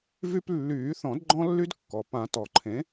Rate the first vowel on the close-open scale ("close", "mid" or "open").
close